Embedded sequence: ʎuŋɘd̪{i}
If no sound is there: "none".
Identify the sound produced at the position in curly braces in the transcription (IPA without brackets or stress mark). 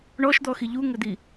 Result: i